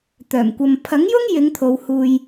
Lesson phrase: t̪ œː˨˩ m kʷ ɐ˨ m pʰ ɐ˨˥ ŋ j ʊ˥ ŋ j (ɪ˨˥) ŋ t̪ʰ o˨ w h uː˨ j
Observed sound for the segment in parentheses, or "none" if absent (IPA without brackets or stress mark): ɪ˨˧